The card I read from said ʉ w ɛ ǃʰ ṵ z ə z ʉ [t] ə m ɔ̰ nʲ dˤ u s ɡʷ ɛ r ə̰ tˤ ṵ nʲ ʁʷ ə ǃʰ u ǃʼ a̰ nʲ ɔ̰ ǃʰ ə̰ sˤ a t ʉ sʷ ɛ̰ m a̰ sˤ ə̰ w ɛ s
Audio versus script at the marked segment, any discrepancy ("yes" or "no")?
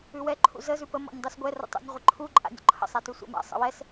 yes